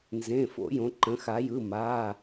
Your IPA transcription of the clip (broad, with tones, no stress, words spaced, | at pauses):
nzẽ˩˧˩fo̰˧˩˧jõ˩˧ ǃə̃˩˧xa˩˧jɯ˩˧˩ ma˩˧˩